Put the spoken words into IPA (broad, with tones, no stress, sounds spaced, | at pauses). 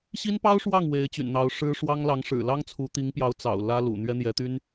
ɕ i˥ n p ɑ˥ ʊ̯ ʂ w ɑ˥˩ ŋ w e˧˥ ɪ̯ t͡ɕ y̰˨˩ n n̪ ɑ˧˥ ʊ̯ ʂ ɻ̩˥ ʂ w ɑ˥ ŋ l ɑ˧˥ ŋ ʂ ɻ̩˨˩ l ɑ˥ ŋ t͡sʰ u˧˥ t̪ i˧˥ ŋ p j ɑ˧˥ ʊ̯ t͡s ɑ̰˨˩ ʊ̯ l ä˥ l ṵ˨˩ n̪ ɥ ɛ˥ n̪ j ɛ˧˥ t̪ y˥ n